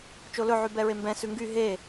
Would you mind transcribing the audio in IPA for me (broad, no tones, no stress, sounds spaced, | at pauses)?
t͡ʃ o l ɵ ʕ y b ɛ ɹ e m b ɛ̃ s ʉ ŋ ɡ y ɦ e